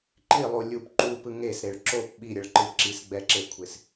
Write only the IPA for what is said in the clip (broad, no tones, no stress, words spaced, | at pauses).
ǃilˠu lʲup ǃupɯ ŋesɾeɭ ǁop ɓiɾʲʌɭǃɯ ǁisɡ͡bɛǁekʷʰes